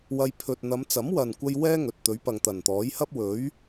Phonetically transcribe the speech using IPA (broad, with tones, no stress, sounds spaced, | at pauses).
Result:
w ɐ˧ j pʰ ɵ˨ t̚ n̪ ɐ˨˧ m t͡s ɐ˨˥ m w ɐ˨ n kʷ ɐ˧ j w ɛː˥ ŋ ɵ˨ t̚ t̪ ɵ˨˥ ɥ p ɐ˨ ŋ t̪ ɐ˨˩ n t̪ ɔː˨˥ j h ɐ˥ p̚ w ɵ˨˥ ɥ